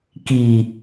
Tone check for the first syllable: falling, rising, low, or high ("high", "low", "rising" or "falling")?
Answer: low